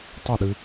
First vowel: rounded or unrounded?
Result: unrounded